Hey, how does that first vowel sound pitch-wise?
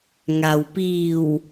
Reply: low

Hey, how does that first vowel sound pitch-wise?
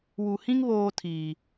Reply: low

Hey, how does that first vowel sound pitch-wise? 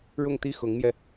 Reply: falling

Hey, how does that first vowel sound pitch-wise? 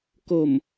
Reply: low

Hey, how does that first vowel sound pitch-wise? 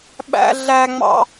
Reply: high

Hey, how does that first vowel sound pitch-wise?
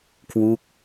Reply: falling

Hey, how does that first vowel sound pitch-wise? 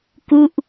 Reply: falling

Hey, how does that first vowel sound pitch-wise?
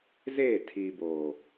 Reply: falling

